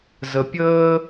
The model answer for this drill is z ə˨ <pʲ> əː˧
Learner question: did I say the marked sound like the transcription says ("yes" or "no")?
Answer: yes